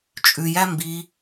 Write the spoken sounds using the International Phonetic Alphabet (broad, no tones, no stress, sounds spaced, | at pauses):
t͡ʃʼ ʉ j æ m b i